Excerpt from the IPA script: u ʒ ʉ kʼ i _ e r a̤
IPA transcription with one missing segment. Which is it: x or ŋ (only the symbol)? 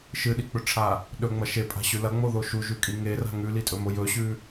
ŋ